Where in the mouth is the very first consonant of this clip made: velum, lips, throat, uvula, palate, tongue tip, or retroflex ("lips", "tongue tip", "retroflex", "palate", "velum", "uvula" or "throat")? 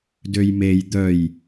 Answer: tongue tip